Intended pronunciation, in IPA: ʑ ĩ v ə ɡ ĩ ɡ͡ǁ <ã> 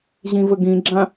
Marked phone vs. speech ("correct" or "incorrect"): correct